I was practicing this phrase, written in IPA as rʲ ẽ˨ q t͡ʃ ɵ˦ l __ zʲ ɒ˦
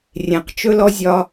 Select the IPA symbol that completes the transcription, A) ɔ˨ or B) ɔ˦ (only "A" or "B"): B